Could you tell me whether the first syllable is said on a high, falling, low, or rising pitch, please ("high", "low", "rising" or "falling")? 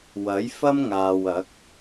rising